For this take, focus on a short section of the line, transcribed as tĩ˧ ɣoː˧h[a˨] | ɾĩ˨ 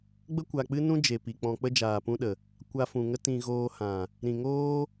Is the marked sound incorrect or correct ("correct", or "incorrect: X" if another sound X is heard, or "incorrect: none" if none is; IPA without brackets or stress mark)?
incorrect: ã˨